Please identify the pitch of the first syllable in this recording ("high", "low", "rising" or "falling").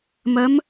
rising